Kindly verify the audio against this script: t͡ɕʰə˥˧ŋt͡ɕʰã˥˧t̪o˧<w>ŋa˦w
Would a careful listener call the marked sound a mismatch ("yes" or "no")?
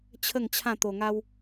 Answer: yes